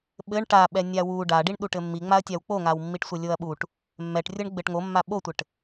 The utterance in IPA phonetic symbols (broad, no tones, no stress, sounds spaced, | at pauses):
ɓ ɘ ɳ ʈ a ɓ ɛ nʲ a w u ɖ a ɖ i ɳ ɗ u ʈ ɘ mː i ŋ͡m a ɐ̯ tʲ a w k͡p o ŋ a w mː i ʈ sʷ ə lʲ o ɐ̯ ɓ u ʈ | mː ɛ ʈ rʲ ə ɳ ɡ͡b ɘ ʈ ŋ o mː a ɓ o tʷ ɘ ʈ